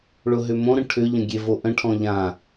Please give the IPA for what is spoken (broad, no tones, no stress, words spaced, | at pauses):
ɭʊɦʏmõɾə̃ ʈʰʏʎə̃ɡʲe voʔə̃ ʈʰɔ̃ʎã